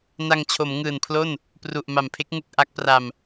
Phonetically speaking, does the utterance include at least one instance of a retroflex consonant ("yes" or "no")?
no